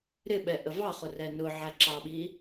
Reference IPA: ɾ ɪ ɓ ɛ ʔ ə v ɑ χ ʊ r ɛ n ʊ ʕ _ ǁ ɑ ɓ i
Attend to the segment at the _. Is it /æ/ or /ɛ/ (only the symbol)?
æ